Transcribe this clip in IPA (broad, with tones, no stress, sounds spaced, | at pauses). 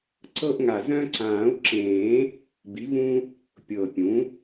ǀ ɤ˦ ʔ ŋ a˨˩ z œ̃˦ ǀ ãː˨˩˦ u̯ ǁ ẽː˨˩˦ | b i˩˥ v ũ˦ | pʲ ɤ˨˩ pʲ ũ˩˥